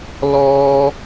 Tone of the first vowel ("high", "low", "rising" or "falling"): high